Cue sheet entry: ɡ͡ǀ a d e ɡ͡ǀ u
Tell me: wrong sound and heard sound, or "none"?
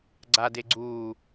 none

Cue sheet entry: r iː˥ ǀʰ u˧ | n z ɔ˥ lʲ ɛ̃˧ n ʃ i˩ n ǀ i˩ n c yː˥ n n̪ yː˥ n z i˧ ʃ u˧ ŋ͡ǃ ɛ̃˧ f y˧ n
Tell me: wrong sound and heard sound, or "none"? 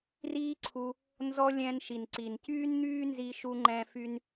none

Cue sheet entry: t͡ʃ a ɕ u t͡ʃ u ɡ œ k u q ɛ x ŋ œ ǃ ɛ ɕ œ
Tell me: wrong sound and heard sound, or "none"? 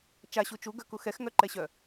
q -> x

